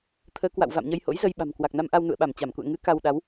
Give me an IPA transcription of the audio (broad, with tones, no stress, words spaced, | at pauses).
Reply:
t̪ʰəː˨˦kwa̰˧˨w va̰˧˨mɲə˧jho̰˧˥jzə˧j ɓa̤˨˩mkwa˨˩k̚na˧mʔa˧w nṵ˧˨ə̯ɓa˧˩m t͡ɕa˧˩mkṵ˧˨ə̯ ŋɨ˨˦ ka˧w ɗa˨˦w